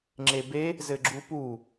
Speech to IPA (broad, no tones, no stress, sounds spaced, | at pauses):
ŋ͡ǁ e b e | z ɘ ɡ͡ǁ u p u